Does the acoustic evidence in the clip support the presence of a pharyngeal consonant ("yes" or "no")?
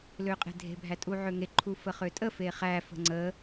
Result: yes